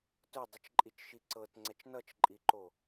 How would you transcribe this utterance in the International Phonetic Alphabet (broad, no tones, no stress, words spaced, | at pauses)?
tʊdˤit͡ʃǃʼit͡ʃʃi ǀɤtŋ͡ǀɛt͡ʃ nʌt͡ʃǃʼiǃo